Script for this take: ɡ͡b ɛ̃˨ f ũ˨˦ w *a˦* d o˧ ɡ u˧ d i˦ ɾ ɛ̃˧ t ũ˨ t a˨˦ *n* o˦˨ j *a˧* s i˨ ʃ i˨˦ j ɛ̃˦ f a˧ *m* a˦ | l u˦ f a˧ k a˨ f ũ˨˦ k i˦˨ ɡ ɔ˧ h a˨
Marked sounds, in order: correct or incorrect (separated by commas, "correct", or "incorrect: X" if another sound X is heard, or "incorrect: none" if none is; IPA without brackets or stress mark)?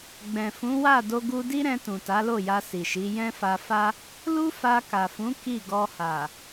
incorrect: a˦˨, incorrect: l, correct, incorrect: f